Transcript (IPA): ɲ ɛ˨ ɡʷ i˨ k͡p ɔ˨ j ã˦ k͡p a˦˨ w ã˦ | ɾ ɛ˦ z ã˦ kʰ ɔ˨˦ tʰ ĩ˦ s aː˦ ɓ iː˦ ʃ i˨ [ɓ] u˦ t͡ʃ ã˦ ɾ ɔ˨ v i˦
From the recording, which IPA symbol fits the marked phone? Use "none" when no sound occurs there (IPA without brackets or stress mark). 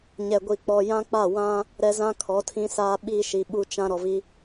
ɓ